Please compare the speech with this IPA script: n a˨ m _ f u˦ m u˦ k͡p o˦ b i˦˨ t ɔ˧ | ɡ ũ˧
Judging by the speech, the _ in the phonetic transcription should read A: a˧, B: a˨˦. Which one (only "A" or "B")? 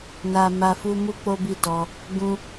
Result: A